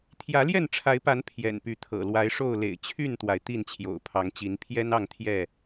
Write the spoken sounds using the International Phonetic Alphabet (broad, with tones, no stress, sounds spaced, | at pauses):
t̪ʰ j ä˨˦ l j ɛ˥˨ n ʈ͡ʂʰ a˨˦ ɪ̯ p a˨˦ n pʰ j ɛ̰˨˩ n p y˨˦ t̪ʰ ɤ̰˨˩ l w a˨˦ ɪ̯ ʂ o˥˨ ʊ̯ l ḛ˨˩ ɪ̯ t͡ɕʰ y˥˨ n t̪ w a˩ ɪ̯ t̪ i˥˨ n t͡ɕʰ j o̰˨˩ ʊ̯ pʰ ɑ˨˦ ŋ t͡ɕ i˨˦ n pʰ j ɛ˦ n ɑ˥˨ ŋ t̪ʰ j ɛ˥˨